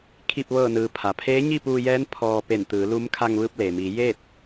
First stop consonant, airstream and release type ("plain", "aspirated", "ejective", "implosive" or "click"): aspirated